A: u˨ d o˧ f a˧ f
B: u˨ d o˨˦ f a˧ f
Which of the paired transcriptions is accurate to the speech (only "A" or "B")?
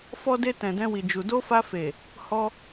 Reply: A